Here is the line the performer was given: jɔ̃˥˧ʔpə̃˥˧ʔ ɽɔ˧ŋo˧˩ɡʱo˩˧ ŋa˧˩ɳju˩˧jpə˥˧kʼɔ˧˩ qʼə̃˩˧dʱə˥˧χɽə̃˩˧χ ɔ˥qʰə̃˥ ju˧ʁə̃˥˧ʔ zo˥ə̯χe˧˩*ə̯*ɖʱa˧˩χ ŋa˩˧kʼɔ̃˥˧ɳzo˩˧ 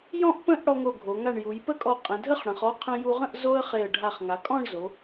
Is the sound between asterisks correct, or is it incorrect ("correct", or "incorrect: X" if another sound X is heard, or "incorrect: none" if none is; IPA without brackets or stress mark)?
correct